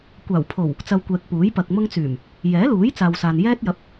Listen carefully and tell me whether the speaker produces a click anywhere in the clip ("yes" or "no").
no